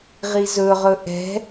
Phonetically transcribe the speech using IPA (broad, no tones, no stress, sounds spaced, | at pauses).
ʁ i z ɵ ʁ ɵ ʔ ɛ̤